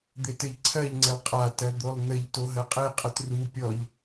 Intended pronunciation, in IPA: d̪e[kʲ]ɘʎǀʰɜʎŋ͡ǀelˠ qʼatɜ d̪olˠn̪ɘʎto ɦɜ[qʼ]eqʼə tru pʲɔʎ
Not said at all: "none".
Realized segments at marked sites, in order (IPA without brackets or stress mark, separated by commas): t, qʼ